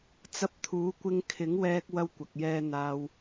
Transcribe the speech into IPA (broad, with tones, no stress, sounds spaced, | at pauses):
t͡s ɐ˧ p̚ t̪ʰ uː˨˥ kʷ ɪ˧ ŋ kʰ ɪ˨˥ ŋ w ɛː˧ k̚ w ɐ˧ w kʷ ɐ˨ k̚ j ɛː˧ n̪ aː˧ w